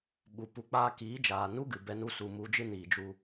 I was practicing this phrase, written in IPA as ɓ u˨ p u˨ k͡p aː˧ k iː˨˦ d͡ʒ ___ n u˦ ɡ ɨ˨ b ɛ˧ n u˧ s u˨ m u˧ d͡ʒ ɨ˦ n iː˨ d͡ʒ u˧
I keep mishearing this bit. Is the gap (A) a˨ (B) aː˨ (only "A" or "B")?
B